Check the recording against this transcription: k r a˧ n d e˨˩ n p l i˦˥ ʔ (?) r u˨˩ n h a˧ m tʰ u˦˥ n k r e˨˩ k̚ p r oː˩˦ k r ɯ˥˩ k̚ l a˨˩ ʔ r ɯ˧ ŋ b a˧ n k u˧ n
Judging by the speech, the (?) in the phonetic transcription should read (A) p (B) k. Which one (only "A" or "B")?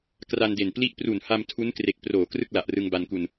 A